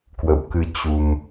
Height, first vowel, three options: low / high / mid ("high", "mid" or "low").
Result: mid